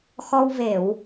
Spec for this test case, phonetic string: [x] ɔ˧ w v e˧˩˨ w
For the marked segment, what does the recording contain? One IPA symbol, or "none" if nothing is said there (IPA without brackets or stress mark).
x